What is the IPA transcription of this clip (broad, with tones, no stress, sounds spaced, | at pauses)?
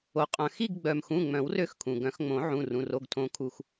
o˩ qʼ œ̃˩ x i˦˨ ɡ ɡ͡b œ˩ m x ũ˩˧˩ ŋ͡m œ̃˨˩˦ w r ø˦˨ x kʰ ũ˩ ɡ œ̃˨˩˦ x ŋ͡m õ˨˩˦ ʕ ũ˩˧˩ r ũ˩˧˩ r o˩˧˩ ɡ tʰ õ˨˩˦ kʰ u˩ x